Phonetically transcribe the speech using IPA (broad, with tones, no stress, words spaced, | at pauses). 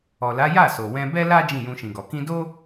ɔ˨la˨˦ ja˦˨so˨ wɛ̃˧bɛ˦la˦ d͡ʒĩ˦˨jũ˧ʃĩ˨ɡɔ˨ kĩ˧do˦